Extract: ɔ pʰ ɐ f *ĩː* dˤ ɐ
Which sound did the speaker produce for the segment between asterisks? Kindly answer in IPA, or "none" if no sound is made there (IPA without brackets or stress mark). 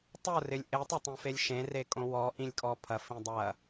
ĩ